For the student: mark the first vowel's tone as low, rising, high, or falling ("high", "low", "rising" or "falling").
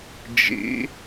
rising